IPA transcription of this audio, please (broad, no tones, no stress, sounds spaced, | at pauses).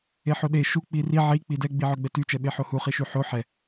e ħ o ɗ e ʃ u k͡p i r i ʕ i k͡p i d ɛ ɡ͡b i ʕ ɵ ɡ͡b ɛ t y t͡ʃ ɛ ɓ e ħ o h u χ i ʃ y ħ o ħ ɛ